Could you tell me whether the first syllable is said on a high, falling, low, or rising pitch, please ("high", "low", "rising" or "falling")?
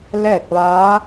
falling